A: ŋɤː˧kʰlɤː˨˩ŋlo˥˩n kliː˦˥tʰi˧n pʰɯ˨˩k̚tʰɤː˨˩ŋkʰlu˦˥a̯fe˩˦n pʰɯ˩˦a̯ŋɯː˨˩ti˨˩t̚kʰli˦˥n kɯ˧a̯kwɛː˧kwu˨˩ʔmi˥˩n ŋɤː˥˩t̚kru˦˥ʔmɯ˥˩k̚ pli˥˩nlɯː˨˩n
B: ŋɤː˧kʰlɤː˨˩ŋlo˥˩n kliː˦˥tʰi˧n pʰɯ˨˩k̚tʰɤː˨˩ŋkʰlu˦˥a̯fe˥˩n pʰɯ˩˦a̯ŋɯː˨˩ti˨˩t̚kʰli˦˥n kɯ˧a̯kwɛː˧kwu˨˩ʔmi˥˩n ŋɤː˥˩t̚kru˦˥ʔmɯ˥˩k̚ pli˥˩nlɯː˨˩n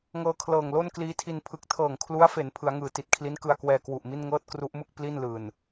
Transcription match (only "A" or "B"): A